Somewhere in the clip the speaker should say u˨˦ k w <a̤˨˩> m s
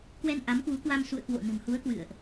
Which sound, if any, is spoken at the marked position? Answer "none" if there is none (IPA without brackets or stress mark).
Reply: a˧